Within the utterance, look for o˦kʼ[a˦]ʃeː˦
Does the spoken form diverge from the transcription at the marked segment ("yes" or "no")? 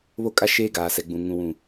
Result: no